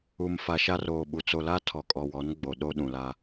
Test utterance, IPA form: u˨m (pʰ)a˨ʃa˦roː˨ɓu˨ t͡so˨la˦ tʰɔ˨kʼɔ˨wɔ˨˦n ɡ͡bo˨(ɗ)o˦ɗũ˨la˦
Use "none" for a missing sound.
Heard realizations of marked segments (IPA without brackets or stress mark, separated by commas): f, ɗ